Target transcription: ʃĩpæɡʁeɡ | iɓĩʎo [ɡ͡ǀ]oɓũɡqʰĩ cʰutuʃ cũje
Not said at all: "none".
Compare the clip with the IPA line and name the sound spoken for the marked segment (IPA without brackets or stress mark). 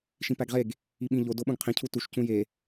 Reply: d